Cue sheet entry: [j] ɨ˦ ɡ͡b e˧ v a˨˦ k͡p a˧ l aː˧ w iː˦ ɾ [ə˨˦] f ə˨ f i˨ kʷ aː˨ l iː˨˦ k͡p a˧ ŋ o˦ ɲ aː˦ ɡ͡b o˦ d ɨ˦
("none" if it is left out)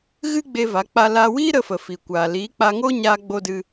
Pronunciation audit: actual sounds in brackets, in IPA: ɣ, ə˦

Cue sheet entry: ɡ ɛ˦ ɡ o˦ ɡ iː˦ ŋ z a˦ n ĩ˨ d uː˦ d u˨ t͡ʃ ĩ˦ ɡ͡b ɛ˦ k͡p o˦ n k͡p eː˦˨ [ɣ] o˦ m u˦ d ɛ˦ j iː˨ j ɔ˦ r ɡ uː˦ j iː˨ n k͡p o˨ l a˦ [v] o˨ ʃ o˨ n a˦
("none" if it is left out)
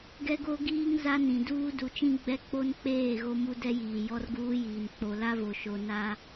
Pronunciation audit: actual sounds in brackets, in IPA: ɣ, v

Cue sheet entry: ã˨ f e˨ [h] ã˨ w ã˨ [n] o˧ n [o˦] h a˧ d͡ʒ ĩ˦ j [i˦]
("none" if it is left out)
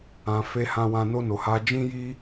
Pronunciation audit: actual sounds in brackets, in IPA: h, n, o˨, i˦

